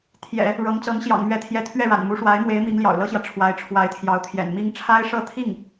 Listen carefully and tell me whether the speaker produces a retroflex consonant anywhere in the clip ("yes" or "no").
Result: yes